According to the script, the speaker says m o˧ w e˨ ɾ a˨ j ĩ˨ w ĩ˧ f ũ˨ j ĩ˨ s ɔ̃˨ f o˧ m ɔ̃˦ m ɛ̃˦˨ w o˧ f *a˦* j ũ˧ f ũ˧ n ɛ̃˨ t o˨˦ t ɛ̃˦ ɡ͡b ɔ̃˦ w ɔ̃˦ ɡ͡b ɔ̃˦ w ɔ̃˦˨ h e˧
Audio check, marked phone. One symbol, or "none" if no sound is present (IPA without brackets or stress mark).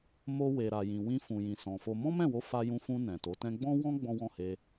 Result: a˧